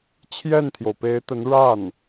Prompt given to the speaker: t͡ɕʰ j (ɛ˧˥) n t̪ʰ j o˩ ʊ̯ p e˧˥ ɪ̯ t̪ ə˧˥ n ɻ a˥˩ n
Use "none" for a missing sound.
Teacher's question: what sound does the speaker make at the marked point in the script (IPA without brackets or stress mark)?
ɛ˥˩